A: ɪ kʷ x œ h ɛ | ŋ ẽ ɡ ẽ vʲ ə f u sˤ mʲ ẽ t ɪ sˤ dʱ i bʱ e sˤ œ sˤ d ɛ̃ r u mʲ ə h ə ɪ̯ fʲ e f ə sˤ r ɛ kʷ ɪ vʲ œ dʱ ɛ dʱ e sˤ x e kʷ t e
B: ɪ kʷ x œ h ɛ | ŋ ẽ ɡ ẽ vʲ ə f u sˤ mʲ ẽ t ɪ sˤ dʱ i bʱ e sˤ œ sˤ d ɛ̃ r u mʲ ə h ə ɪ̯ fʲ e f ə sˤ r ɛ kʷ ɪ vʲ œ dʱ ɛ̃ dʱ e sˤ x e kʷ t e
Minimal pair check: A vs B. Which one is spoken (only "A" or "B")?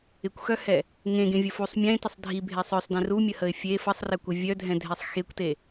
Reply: B